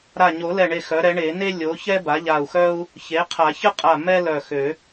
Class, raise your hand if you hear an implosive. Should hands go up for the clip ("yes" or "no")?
no